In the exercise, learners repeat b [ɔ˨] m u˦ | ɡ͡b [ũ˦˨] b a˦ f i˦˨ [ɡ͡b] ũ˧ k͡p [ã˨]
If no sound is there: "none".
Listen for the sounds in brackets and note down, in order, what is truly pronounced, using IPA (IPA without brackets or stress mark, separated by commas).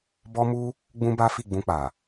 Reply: ɔ˦, ũ˦, ɡ͡b, a˨